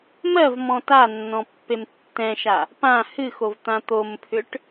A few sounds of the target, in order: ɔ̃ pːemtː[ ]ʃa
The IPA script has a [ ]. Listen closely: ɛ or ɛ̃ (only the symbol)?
ɛ̃